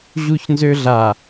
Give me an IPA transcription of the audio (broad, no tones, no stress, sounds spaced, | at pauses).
ʑ u ç n z ø ɮ a